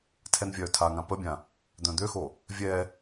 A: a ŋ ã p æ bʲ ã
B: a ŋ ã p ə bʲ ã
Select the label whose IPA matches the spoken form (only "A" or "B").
B